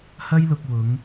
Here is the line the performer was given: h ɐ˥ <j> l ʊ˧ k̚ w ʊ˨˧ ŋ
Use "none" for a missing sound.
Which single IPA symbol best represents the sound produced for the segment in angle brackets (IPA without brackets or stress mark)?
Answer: j